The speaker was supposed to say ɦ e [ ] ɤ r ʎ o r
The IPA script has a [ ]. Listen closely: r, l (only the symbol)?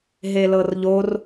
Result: l